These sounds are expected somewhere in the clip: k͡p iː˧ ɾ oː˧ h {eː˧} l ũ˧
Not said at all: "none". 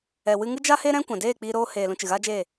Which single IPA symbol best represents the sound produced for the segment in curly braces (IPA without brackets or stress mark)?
eː˨